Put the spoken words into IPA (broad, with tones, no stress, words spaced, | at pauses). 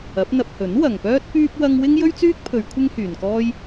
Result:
ɐ˨˥p̚n̪ɐ˧p̚ hɵ˨˥nwɐ˨ŋpœː˥t̚ pyː˥p̚ wɐ˥ŋ wɪ˥ŋjɵ˥ɥt͡syː˥k̚pʰɵ˨˧ɥ kʷʰɪ˥ŋhyː˨nkɔː˥j